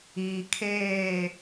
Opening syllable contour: low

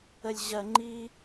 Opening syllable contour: high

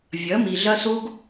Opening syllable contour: rising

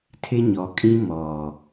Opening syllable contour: high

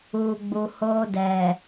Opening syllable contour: low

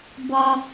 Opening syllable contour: low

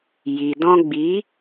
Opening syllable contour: low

